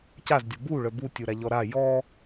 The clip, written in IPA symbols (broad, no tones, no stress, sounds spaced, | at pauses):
c a z dʲ ɔ b u ɭ œ b u tʲ u ɾ a ʎ ɔ ɾ a j ɔ